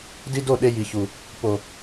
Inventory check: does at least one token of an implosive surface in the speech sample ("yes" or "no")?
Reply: yes